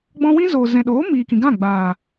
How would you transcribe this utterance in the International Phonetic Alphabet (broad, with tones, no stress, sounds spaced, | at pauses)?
ɡ͡b ɔ̃˧ w ĩ˦ z oː˨ z ɛ̃˨ ɗ oː˨˦ m iː˨ k ĩ˨ ɡ ã˦˨ ɡ͡b aː˨